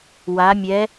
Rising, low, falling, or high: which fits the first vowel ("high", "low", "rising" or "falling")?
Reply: rising